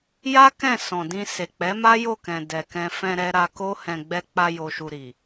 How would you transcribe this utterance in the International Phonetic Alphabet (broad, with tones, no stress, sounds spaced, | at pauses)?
j a˦ k ɛ̃˦˨ s ɔ̃˨ d ĩ˧ s e˨ k͡p ɛ˨˦ m a˦ j o˦˨ k ɛ̃˨ d ɛ˨ k ɛ̃˧ f ɛ̃˧ ɾ ɛ˧ ɾ a˧ k o˦ h ɛ̃˧ ɡ͡b ɛ˧ k͡p a˧ j o˧ ʃ u˧ ɾ i˨